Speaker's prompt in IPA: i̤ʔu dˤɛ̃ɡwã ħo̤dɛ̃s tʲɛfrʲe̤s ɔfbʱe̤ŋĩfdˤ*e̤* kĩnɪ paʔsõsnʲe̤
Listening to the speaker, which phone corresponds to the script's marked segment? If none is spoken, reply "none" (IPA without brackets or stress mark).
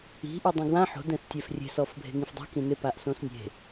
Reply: i̤